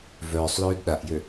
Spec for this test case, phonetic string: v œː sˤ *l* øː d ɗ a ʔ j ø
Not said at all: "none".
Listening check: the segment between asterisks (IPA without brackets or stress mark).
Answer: l